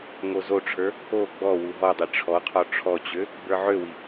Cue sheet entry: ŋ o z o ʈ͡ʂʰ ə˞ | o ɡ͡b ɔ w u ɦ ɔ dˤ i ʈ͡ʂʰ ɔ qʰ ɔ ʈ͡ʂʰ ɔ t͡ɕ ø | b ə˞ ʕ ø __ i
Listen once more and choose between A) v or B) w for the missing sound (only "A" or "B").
B